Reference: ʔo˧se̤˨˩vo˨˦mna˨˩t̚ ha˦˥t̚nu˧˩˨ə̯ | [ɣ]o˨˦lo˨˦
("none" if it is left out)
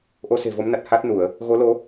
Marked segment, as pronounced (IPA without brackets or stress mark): ɣ